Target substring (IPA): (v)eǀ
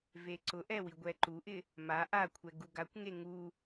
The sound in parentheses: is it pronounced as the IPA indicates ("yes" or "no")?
yes